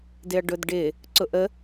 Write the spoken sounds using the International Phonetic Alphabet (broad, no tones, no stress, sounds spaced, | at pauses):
d ɪ ɐ̯ ɖ ʊ d ɖ ɪ | ǀ ʊ ʔ ə